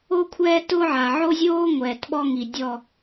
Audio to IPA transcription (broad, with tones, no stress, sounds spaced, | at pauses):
o˦ kʷʰ ɛː˦ t ʊː˦ ʕ a˨ ʕ o˦ zʲ oː˦ ŋʷ ɛː˨ t ɓ ɔ˦ ŋ i˨ dʲ ɔ˦˨